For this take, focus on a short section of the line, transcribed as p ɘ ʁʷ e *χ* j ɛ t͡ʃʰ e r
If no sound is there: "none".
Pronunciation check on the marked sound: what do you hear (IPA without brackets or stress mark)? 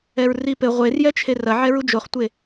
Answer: r